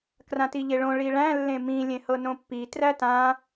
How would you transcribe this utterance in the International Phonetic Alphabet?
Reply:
krãtiʎeɭõ ɭiɭæ̃ lːẽmĩ lʲẽhɤnõpːi trætã

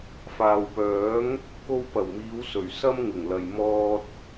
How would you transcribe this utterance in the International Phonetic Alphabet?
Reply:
faː˨wpœː˨˥ŋ | ko˧wpɐ˨˩wmiː˨˧wsɵ˨˩ɥ sɐ˧m ŋɪ˨˩ŋlɐ˨j mɔː˧t̚

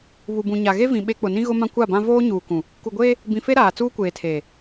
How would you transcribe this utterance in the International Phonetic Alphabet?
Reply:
βu˨bũ˨ɲa˨ ɣe˦vĩ˨ ɓe˦ k͡pʊ˨nĩ˦ ɣʊ˦ mã˦kʷa˦˨bã˦ voː˦ɲuː˨kũ˨ | ku˨ɡʷeː˦ | bĩ˨fe˦ ɾaː˨t͡suː˦kʷeː˨tʰeː˨

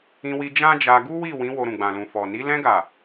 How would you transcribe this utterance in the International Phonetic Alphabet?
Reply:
ĩ˧wi˧ d͡ʒã˦d͡ʒa˧ ɡu˦wi˦˨wĩ˨˦ wo˧ɾũ˨ɡ͡bã˨lũ˨ fɔ˨ni˨˦ lɛ̃˧ɡa˨

